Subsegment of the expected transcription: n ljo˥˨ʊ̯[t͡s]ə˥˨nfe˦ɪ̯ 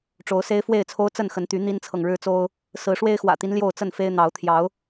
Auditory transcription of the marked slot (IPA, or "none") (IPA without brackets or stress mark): t͡s